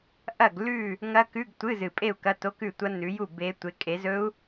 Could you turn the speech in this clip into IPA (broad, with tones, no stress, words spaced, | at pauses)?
ʔɐ˥˨ɡlʉ˥˨ | ŋɐ˦˥kʉ˧˥˧ɡtʷɨ˧˥˧zɨ˨˩ pʼe˥˨u̯kɐ˧˥˧to˧˥˧kʉ˥˨ tʷɐ˦˥nːʉ˨˦ju˥˨ be˦˥ tʷe˨˦kʼe˨˦zɵ˦˥u̯